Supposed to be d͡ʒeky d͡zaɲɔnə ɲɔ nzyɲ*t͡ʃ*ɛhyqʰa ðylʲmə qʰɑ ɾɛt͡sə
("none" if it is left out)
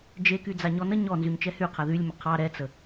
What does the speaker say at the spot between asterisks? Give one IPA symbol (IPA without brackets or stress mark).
t͡ʃ